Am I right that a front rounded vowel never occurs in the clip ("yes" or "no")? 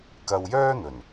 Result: no